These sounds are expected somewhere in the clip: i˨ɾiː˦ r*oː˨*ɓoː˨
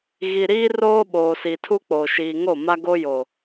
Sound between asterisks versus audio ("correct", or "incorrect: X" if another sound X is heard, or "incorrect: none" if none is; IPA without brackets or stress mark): incorrect: oː˦